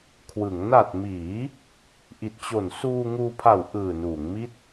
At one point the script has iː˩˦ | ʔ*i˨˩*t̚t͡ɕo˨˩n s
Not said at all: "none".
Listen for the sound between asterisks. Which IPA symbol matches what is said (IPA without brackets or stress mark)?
i˨˩